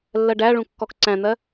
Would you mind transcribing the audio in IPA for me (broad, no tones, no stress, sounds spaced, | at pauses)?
lː ɜ ɖ æ ɭ ũ kː ɔ k ǀ æ̃ n̪ ɜ